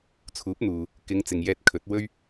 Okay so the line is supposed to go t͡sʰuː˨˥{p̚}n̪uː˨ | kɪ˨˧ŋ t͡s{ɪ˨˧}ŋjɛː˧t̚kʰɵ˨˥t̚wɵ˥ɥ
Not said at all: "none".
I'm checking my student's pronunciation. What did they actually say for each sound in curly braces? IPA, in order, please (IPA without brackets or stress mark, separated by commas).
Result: p̚, ɪ˨